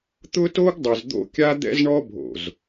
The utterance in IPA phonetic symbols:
t̪ ʊ˦ t o˦ ɡ dˤ ʊ˨ z d̪ o̰˦ kʲ a˦ d̪ ɛ̰˦ z ɳ ɔ˦ bʱ o̰˨ z

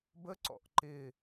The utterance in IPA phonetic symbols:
b ə ǀ ɔ̰ ʔ ǃ ɪ

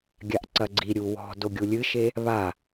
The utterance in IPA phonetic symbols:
ɡʲ a ʔ ǀ ɐ ɡ͡ǀ i ɾʲ u w ɔ̤ d o ɡʲ u lʲ ɨ ʃ e | β a

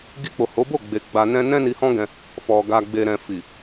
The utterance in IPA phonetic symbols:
ɡ i˧ k͡p o˨ h o˨˦ b o˦˨ ɡ͡b e˧ ɡ͡b a˧ n ɛ̃˦ n ɛ̃˦ n i˧ h ɔ̃˦ ɡ ɛ̃˧ | f ɔ˨ ɡ a˨ ɡ͡b e˨ ɾ ɛ̃˨ f i˨

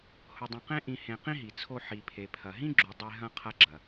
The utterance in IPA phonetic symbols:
h ʊ˧ dˤ ɐ̃˧ q ẽ˦ ʔ ĩ˧ h ẽ˧ q ĩ˦ ɦ i˨ t͡sʰ o˧ ħ i˨ pʰ e˨ pʰ ɐ˨ ɦ ĩ˦ ɡ͡ǁ u˨ dˤ e˧ ɦ ɐ̃˧ qʰ ɐ˧ ɡ͡ǁ ɐ˨

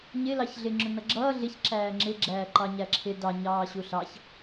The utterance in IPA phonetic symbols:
ɲ ɪ l ɑ ç ɮ ɪ ŋ͡ǁ ʊ n ʌ ɡ͡ǁ ʌː ɮ ɪ ç ǁ æː ŋ͡ǁ ɪ ɡ͡ǁ æː ǃ ɑ ɲ æ ǁʰ ɪ d ɑ ɲ ɑː ɕ u ɬ ɑ ç

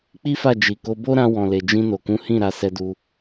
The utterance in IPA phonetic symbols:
k͡p i˦ f a˦˨ d͡ʒ i˨ k o˧ b o˦ ɾ ã˧ w ɔ̃˨ l e˨ d͡ʒ ĩ˧ n o˨ k ũ˨˦ h ĩ˦˨ ɾ a˧ s ɛ˧ d u˧

